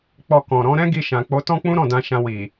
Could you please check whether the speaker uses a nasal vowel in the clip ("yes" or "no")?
yes